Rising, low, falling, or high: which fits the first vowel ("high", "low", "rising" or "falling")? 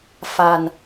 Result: low